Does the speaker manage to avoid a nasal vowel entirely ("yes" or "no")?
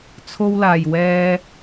yes